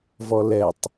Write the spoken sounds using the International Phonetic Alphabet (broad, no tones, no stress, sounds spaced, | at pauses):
v ɔ l ɛ tˤ